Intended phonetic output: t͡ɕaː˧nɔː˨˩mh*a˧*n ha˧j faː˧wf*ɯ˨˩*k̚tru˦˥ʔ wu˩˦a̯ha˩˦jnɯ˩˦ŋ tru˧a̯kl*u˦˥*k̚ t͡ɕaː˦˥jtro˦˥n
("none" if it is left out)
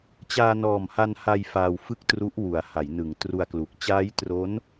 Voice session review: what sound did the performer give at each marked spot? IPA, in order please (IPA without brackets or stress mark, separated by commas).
a˧, ɯ˥˩, u˨˩